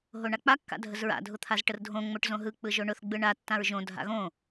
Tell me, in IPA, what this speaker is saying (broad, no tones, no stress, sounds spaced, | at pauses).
ɦ o ɳ a k͡p a kː a̰ dʱ ə z ɹ a̰ dʱ ʊ t̪ʰ a z ʈ ə r dʱ õ ŋ͡m o ʈ z õ ɦ ɯ k͡p ɯ ʒ o ɳ ʊ θ ɡ͡b ɯ ɳ a tː ã ɹ ʒ õ dʱ a̰ ɣ õ